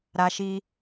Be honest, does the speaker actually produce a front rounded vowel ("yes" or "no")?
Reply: no